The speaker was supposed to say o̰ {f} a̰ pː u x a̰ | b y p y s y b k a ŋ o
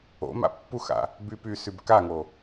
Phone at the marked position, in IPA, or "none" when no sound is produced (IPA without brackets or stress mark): m